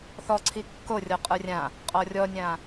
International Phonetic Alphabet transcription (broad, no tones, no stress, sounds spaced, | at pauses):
θ ɔ ǀʰ i kː o rʲ ɔ qʼ ə˞ rʲ ã | qʼ ɔ rʲ ɔ nʲ ã